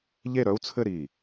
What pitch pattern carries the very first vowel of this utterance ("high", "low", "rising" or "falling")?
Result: falling